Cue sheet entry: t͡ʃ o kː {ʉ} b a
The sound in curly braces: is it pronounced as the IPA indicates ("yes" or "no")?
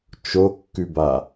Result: yes